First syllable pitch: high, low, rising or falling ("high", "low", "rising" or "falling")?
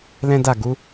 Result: high